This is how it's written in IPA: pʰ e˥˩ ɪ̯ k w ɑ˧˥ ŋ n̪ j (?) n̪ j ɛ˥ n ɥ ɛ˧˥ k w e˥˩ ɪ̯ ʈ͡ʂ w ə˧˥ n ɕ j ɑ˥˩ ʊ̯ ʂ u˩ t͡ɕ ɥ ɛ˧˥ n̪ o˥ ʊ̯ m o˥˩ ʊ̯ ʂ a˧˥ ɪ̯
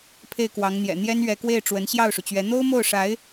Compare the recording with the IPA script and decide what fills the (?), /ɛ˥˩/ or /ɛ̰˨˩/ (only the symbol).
ɛ̰˨˩